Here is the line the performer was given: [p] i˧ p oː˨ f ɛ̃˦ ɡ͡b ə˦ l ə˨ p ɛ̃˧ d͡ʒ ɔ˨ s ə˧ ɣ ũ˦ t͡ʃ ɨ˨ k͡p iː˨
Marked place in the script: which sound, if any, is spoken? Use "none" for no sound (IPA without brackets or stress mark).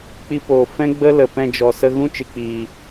k͡p